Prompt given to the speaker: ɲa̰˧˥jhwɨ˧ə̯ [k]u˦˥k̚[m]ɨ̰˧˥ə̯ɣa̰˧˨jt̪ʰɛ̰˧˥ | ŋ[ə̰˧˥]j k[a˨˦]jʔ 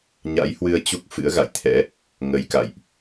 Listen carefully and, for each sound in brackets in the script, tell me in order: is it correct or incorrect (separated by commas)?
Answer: incorrect, incorrect, incorrect, incorrect